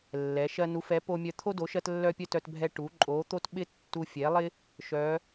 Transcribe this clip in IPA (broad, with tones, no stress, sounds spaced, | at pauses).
lː ɛ˩˧ ʃ ɜ˧ n u˩˧ f ɛ˩˧ p o˧ mʲ œ˧ t̪ʰ o˧ d o˩˧ ʃ ɜ˧ t lː œ˧ pʲ œ˧ t œ˧ t bʱ ɛ˧ ʈ u˩˧ ǃʼ o˩˧ t̪ o˧ t ɓ ɪ˧ tː u˧ fʲ ɛ˩˧ lˠ ɪ˧ | ʃ œ˩˧